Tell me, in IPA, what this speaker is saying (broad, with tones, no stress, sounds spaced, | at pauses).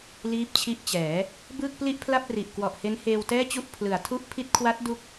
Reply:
l iː˦˥ p̚ t͡ɕʰ i˦˥ ʔ t͡ɕ ɛː˩˦ | b ɯː˥˩ k̚ p l i˥˩ ʔ pʰ l a˥˩ p̚ r i˨˩ ʔ k w ɔ˨˩ ʔ h e˦˥ n h eː˧ w t ɛː˥˩ t͡ɕ u˥˩ ʔ pʰ l ɯ˩˦ a̯ tʰ u˦˥ ʔ pʰ i˦˥ t̚ kʰ w a˦˥ t̚ d u˦˥ k̚